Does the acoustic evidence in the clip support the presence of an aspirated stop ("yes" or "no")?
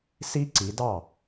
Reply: no